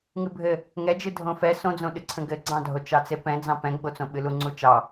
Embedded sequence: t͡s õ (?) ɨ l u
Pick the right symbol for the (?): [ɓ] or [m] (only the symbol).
ɓ